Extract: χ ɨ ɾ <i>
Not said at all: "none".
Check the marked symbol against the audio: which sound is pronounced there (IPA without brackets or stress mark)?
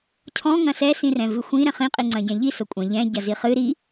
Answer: i